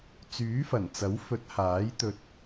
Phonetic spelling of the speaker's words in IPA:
t͡s yː˨˥ f ɐ˨˩ n t͡s ɐ˨˥ w f ɵ˨˥ t̚ h aː˨˥ j t̪ ɵ˧ t̚

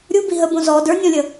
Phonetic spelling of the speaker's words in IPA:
ɾʲ u b i ɦ ə b õ z ɔ d ə˞ nʲ ɔ̃ lʲ ə

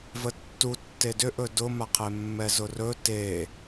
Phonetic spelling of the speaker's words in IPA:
v ə tː u tː e d ʏ ʔ ɵ d ʊ m a qʰ e mː ɛ z ʊ r ɵ t e

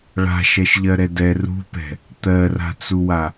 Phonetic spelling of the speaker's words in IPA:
ɭ a̤ ʃ ɛ ʃ ʎ ɜ ɾ ɛ d ɛ r ṳ p ɛ̤ | t̪ ɜ r a̤ t͡s u w a

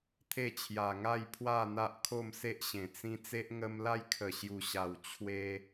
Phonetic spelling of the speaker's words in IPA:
t̪ʰ e˥˧ t͡ɕʰ j a˨˩ ŋ a˥˧ j pʰ w a˥˧ n̪ a˦ ʔ kʰ o˥˧ m s e˦ ʔ ɕ ẽ˨˩ t͡s ĩ˦ t͡s e˦ ʔ ŋ ə˦ m l a˦ j kʰ ə˨˩ ɕ j u˨˩ ɕ a˨˩ w t͡ɕʰ w e˦

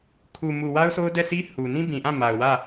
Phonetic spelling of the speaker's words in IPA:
kʰ u˨ m u˨ w a˦ ʊ̯ sʰ o˦ ʊ̯ d ɛ˦˨ sʰ i˦ h u˨ n ĩ˦ b ĩ˨ ʔ ã˦˨ m a˨ ʊ̯ w ä˦˨

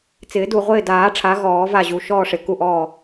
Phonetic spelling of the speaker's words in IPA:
t͡s ɪː˨˩˦ d u˨˩ ʁʷ ɪː˦˨ d aː˨˩˦ ʈ͡ʂʰ a˩˥ ɣ ɔː˨˩˦ v a˦˨ ʑ u˨˩ ʃ ɔː˦˨ ʂ ɪ˨˩ k u˦˨ ʔ ɔː˦˨

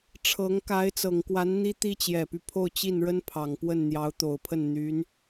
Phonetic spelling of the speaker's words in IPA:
ʈ͡ʂʰ ɤ˧˥ ŋ k a˧˥ ɪ̯ t͡s ɤ˨˩ ŋ k w a˧˥ n n̪ i˥ t̪ i˥ t͡ɕ j ɛ˨˩ p y˦ pʰ o˥˧ ʊ̯ t͡ɕ i˥˩ n ɻ ə˥ n pʰ ɑ˨˩ ŋ p w ə˥˩ n n̪ j ɑ˧˥ ʊ̯ t̪ o˨˩ ʊ̯ pʰ ə˥˩ n n̪ y˧˥ n

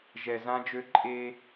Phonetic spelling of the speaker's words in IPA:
ʒ ɛ˨ z ã˦ d͡ʒ ø˦ ǃʼ e˦

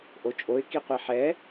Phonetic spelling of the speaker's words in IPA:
ʔ o t͡ʃʼ o ɪ̯ k i qʷ ɛ ħ ɛ

